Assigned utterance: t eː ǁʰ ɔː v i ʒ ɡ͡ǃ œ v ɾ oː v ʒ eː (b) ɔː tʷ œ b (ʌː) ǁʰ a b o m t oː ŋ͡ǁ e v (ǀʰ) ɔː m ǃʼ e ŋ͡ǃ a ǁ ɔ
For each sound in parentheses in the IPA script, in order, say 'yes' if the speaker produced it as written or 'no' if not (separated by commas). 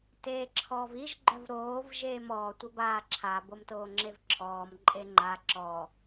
no, no, no